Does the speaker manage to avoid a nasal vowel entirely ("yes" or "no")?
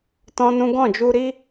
no